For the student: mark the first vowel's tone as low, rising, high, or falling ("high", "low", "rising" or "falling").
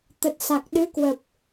low